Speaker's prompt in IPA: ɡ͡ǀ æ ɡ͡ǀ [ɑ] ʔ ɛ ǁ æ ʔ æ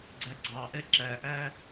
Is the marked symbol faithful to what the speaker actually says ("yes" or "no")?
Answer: yes